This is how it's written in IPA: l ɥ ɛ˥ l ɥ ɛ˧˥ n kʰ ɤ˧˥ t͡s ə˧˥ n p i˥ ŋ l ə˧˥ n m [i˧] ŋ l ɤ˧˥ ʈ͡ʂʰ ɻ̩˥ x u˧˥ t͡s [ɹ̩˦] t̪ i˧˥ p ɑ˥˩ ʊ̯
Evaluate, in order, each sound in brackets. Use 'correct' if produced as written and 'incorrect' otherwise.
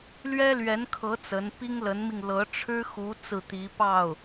correct, incorrect

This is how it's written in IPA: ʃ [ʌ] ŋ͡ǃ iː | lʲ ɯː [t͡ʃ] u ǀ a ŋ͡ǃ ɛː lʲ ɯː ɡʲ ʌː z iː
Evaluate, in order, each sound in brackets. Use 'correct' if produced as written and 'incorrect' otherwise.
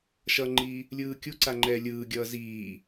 correct, incorrect

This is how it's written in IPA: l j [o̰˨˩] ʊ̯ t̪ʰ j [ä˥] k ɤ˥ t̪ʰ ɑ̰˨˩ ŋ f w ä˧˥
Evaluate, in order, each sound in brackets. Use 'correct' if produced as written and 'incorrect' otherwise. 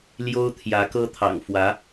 incorrect, incorrect

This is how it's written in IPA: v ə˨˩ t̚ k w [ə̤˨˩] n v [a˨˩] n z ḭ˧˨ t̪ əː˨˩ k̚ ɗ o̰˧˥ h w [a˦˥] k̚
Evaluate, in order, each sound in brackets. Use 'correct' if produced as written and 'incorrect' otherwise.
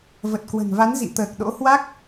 correct, incorrect, correct

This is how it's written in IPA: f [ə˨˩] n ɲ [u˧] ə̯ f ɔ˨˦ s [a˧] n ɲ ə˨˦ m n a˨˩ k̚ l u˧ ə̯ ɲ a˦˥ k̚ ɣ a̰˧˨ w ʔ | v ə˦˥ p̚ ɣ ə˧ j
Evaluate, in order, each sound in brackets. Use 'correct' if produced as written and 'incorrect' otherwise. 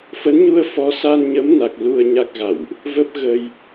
incorrect, correct, correct

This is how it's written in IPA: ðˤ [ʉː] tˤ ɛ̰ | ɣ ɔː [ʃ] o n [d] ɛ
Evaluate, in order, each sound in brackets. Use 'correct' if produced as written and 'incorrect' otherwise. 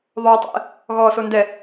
incorrect, incorrect, correct

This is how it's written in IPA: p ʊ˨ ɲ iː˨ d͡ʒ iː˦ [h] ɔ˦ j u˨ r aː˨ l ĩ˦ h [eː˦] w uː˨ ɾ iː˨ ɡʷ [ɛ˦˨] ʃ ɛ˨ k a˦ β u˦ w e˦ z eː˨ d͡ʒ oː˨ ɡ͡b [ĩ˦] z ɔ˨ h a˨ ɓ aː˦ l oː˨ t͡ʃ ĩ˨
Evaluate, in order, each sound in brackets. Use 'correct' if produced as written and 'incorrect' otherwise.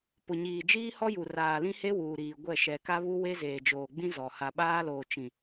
correct, incorrect, correct, correct

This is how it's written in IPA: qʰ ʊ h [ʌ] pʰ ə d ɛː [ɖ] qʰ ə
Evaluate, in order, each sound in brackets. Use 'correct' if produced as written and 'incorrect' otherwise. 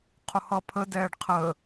correct, correct

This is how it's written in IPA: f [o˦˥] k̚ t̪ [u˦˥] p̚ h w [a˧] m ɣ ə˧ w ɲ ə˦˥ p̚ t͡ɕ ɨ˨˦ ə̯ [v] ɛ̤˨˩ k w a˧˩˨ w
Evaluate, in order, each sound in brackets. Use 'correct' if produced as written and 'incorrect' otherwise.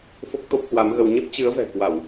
correct, incorrect, incorrect, correct

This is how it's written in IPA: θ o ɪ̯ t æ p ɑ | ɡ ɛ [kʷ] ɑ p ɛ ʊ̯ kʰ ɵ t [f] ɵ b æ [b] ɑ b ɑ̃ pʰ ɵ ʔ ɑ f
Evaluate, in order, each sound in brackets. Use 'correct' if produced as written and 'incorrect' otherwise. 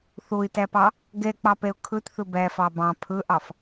incorrect, incorrect, incorrect

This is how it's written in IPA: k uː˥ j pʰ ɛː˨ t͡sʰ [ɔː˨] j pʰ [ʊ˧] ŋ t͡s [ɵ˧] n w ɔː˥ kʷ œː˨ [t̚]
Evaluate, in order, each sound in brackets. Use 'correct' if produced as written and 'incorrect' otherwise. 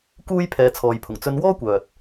correct, incorrect, correct, correct

